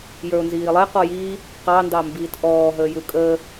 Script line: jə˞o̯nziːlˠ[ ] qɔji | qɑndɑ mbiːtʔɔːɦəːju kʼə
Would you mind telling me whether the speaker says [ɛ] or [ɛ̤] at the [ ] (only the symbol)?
ɛ